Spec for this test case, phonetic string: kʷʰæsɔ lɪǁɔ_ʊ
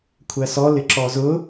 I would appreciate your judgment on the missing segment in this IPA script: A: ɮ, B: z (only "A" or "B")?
B